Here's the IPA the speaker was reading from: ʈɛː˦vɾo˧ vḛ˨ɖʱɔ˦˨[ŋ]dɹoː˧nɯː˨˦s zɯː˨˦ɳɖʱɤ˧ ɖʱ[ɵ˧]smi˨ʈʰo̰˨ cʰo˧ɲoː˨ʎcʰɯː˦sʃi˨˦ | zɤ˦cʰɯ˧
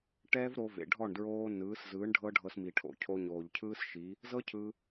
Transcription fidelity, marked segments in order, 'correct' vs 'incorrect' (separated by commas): incorrect, incorrect